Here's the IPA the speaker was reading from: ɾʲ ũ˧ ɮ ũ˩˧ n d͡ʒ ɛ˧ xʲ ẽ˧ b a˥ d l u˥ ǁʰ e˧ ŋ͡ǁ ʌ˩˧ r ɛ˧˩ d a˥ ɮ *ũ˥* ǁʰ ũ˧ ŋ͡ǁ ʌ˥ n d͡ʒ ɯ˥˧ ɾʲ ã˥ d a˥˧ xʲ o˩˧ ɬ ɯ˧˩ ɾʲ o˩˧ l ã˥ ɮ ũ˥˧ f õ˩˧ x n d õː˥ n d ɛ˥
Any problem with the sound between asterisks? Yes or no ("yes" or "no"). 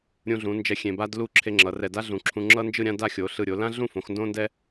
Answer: yes